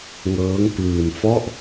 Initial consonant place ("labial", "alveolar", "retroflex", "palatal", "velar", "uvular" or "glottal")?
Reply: velar